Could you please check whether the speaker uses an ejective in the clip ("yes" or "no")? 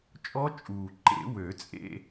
yes